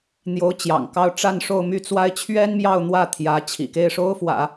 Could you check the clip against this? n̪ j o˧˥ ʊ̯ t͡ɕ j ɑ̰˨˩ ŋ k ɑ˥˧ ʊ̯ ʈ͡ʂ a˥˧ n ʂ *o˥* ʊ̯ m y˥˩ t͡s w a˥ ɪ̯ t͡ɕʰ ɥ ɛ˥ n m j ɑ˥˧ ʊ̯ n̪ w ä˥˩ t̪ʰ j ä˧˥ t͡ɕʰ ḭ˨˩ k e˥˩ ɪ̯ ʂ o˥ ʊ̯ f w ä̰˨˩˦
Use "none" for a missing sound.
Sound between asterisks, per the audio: o˥˧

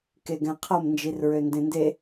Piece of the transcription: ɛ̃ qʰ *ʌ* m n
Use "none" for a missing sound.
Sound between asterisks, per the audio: ʌ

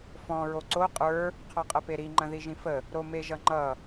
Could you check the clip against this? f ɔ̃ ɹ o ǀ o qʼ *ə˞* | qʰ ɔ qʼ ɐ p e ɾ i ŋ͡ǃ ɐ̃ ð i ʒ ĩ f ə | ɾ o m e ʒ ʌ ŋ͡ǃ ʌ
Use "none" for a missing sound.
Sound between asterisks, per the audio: ə˞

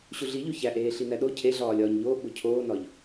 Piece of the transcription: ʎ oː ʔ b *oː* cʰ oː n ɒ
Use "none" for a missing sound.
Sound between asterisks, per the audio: o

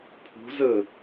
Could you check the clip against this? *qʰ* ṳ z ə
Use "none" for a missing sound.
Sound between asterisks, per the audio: pʰ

